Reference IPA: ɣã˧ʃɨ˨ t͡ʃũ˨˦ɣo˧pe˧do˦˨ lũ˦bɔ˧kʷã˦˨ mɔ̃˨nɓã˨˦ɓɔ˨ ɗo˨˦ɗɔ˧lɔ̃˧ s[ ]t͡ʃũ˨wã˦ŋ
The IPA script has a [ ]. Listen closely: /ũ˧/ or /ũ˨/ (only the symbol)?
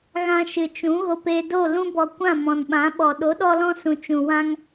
ũ˨